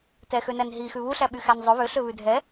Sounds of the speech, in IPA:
tɛxønæn ɦixʉ βuɬæɓyxæn zˤɵ βøɬøβʉ dʱɛ

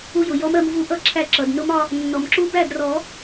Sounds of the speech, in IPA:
u˧jʊ˩ jɔ˧˥mɜ˧mvu˧˥ʔʌ˥˩ ǁʰæ˥˩ǁʌ˩d nʊ˧˥m ɒ˧ | nːɔ˩mǁu˧˥bæ˥˩drɔ˨˩˦

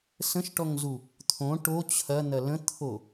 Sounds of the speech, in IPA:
sə̃ʃʈɔŋzu | t̪ʰõ ʈo t͡ɕʰɐn̪ɐ lə̃t̪ʰo

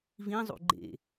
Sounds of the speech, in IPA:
vĩzˤṵ ɡ͡ǃḛ

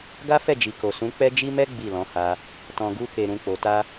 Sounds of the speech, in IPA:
ɡa˦fɛ˦˨d͡ʒi˨ko˨ sũ˨˦ k͡pɛ˦d͡ʒi˦ mɛ˦ ɡ͡bi˦˨lɔ̃˨˦ha˧ | tɔ̃˨ɡu˧ke˨ɾũ˨ k͡po˨ta˧

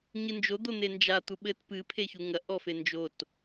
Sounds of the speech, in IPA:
ɲɨnd͡ʒo d̪on̪end͡ʒa t̪uɓɘt pɨ pʰeçuŋɐ ʔɔfend͡ʒot

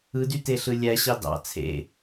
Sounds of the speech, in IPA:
ɯdyteɬɯ lʲæɕɑ dɑ̰ t͡sʰḛ

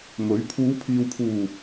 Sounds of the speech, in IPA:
mɵ˨˥ɥ pʰuː˨˧pʰiː˨wpʰuː˨˩

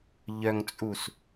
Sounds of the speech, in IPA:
ʎœŋt͡sʼus

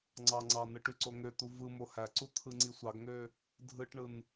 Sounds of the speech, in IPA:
ŋ͡ǀɑŋ͡ǀɑnɯ ʈyǀoŋøt̪u vɯmo hæǀu t̪ʰɯŋ͡ǀisʷɑɡŋø | dʱɯʈɳɯn

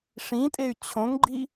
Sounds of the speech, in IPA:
ʂĩtʼey̯ t͡ɕʰõŋɡ͡ǃi

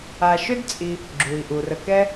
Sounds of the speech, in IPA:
a˨ʃʏ˥dt͡sʼi˨ | ɡ͡ǁu˩i̯ ʔu˩rə˨kɛ˦

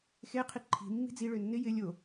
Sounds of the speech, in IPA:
xe qʰiǃʰi̤ mːi̤d͡ziɭø nːɪ jɪ lʲo

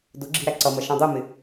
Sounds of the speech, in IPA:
dʊɡ͡ǁi̤ ɾæǀʌmʌ ʃɔ̃dˤumɪ

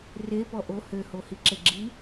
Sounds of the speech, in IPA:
repɔ ʔo høho hiǁeɡ͡ǁi

